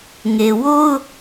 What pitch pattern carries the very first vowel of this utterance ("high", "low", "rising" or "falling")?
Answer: low